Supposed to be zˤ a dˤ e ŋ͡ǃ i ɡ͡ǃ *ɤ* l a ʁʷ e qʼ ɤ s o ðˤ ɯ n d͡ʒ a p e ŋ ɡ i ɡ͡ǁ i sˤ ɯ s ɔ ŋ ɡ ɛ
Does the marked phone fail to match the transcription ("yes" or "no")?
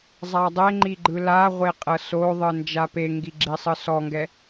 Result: yes